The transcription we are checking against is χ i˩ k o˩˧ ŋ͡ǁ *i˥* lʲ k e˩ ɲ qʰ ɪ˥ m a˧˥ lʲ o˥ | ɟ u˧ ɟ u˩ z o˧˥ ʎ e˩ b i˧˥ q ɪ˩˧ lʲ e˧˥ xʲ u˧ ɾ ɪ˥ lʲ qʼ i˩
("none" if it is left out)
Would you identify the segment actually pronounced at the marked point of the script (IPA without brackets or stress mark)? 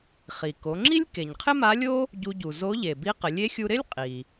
i˥